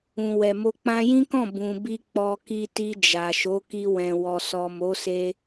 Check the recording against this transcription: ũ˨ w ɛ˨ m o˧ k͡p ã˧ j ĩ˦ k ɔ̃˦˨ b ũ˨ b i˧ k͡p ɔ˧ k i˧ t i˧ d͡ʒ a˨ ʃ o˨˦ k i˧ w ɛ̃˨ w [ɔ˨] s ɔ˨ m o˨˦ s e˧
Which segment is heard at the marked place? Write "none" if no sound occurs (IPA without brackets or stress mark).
ɔ˨